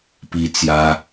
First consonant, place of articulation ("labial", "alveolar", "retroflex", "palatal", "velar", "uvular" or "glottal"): labial